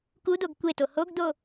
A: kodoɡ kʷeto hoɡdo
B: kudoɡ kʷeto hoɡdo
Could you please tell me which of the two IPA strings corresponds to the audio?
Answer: B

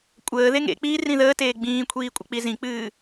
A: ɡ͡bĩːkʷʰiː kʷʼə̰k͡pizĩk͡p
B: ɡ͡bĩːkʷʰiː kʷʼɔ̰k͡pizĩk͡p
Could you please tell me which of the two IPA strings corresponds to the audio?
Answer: A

